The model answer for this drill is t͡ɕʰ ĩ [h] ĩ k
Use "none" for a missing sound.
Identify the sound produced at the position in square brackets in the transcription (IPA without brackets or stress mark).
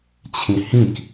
h